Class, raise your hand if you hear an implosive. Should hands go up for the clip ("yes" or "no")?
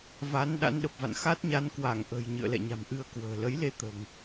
yes